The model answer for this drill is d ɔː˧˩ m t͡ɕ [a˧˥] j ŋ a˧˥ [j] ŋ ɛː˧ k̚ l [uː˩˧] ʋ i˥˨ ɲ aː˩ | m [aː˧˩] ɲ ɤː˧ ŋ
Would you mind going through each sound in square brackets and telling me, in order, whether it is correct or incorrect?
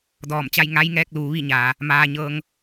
incorrect, correct, correct, incorrect

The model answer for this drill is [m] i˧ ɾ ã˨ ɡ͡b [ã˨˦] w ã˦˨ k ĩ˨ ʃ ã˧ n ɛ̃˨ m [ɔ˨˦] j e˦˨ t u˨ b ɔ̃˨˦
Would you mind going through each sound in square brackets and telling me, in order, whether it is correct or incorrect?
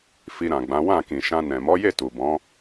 incorrect, correct, correct

